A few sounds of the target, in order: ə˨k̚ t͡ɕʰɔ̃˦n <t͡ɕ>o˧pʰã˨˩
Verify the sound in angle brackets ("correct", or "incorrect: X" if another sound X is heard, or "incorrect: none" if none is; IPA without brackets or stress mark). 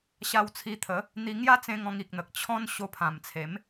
incorrect: ɕ